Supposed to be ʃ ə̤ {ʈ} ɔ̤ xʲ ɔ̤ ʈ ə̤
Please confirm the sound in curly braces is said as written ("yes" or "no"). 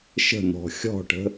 no